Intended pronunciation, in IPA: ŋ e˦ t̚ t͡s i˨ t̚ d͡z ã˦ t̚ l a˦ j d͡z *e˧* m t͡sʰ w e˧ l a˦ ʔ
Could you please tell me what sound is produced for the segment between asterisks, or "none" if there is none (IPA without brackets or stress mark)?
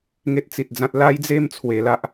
e˥˧